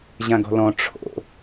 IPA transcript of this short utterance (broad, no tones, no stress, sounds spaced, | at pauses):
ʑ ã ɡ ɔ̤ l ɔ̃ ʈ͡ʂʰ o̰